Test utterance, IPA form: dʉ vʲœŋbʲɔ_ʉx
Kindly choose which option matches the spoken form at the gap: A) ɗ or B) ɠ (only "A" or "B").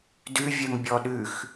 A